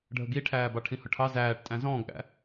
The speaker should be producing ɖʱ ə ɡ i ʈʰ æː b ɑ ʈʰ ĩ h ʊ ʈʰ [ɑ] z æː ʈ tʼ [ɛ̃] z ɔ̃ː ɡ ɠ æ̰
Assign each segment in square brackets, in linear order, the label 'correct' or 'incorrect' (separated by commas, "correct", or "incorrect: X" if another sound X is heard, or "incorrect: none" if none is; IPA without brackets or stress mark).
correct, incorrect: æ̃